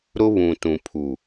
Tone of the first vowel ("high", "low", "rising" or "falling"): high